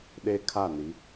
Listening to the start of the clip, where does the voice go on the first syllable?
high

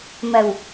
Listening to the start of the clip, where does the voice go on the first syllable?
low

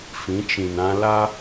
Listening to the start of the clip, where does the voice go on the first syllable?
rising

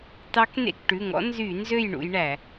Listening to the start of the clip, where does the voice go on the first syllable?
rising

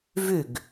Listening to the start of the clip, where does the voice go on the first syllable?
falling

